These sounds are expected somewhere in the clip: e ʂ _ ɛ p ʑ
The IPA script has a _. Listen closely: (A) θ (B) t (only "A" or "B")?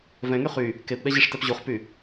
B